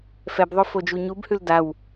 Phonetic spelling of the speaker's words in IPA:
f ɛ b ðˤ o f o d͡ʒ u ɲ u b h ʉ l d a w

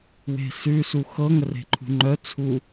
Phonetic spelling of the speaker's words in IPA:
w e̤ s ʉ s u x ɤ ŋ ə r e̤ ǃʰ ṳ ŋ͡ǃ œ t͡sʰ u

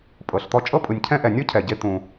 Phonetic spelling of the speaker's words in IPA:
pʼ ɤ˩ ɬ t̪ ɔ˧ t͡ʃʼ ɤ˥ pʼ ɯ˩ nʲ cʰ ɛ̃˥ ʔ ɛ˩ nʲ ɔ˥ cʰ ɛ˩ ɟ e˧ t̪ ũ˩

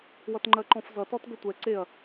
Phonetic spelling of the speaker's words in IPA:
w ʌ t ŋ͡ǃ ɜ ǃ ɔ̃ f z ʌ t ɔ t ɡ ə tʷ ɛ ǀ e ɐ̯

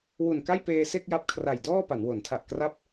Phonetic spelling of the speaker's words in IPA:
w u˨˩ n k a˥˩ j p eː˧ s e˥˩ k̚ j a˦˥ p̚ kʰ r a˨˩ j d ɔː˥˩ p a˩˦ n w o˩˦ n tʰ a˨˩ ʔ k r a˦˥ p̚

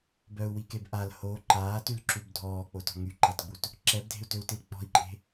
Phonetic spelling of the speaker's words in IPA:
b œ u̯ w i k e b ʔ a l h o ǃ aː t y l ǁ u b dʱ ɔː k͡p o t ɔ̤ ŋ y ǃ a t ɡ͡b u t | ǁ ɛ b dʱ e̤ u̯ t ø u̯ t i l k͡p ɔ̤ i̯ ǃʼ e̤

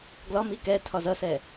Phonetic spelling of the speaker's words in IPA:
ɡ l ɒ m i k ɛ tʰ ɒ z ʌ s ɛ

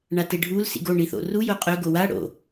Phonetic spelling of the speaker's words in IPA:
ɳ a t e ɖʱ u l s ḭ ɡ o ɳ i θ o̰ r u j o qʼ ɵ ɡ o w a ɽ o̰

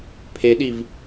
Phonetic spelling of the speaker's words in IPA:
pʰ e ɗ i v

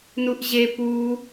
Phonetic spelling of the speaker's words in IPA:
n u ʔ ʑ e p u

